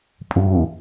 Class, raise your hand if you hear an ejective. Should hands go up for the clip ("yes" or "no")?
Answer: yes